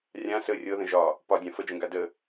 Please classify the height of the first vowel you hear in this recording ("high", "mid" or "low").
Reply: low